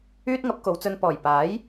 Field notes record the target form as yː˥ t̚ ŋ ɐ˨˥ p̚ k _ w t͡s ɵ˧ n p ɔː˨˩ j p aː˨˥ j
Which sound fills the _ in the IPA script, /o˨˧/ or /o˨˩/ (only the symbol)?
o˨˧